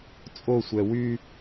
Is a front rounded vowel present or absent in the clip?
present